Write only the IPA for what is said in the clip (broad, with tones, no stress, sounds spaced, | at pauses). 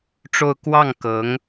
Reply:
ʈ͡ʂ o˥˧ ʊ̯ k w ɑ˥˩ ŋ k ɤ˧˥ ŋ